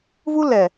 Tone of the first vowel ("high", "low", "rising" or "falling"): high